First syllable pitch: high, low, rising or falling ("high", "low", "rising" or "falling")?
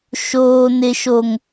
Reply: high